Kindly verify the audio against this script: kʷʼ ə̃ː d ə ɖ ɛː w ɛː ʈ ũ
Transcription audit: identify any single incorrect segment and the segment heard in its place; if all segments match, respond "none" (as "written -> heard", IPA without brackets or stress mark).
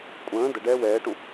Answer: none